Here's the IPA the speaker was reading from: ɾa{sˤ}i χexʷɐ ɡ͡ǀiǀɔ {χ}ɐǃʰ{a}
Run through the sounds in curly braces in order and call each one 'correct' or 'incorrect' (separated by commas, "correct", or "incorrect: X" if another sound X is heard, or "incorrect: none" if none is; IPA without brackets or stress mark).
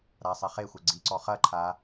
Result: correct, correct, correct